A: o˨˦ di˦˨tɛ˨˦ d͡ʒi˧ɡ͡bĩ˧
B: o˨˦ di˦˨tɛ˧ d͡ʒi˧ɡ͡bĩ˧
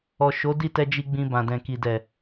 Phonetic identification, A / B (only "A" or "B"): B